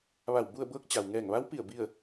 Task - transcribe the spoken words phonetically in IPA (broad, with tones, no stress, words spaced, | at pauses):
ʋa˧˩w bu˥˨ə̯ bɤː˧˥k̚ t͡ɕa˩wŋɛː˧˩ŋʋa˧˥wpi˧˩ə̯ bi˥˨ə̯